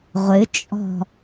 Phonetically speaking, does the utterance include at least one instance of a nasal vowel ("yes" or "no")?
no